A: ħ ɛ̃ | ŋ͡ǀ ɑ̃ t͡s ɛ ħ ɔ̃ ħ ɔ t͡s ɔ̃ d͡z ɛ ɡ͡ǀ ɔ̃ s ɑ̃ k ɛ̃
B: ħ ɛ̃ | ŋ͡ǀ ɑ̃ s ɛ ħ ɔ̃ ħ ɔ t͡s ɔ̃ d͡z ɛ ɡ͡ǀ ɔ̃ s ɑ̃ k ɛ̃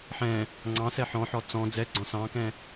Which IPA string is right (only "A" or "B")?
B